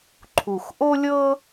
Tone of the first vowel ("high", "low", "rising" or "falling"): low